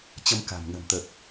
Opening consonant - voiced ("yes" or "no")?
no